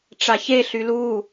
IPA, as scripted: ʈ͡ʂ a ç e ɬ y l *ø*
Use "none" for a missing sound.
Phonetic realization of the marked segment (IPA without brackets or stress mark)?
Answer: u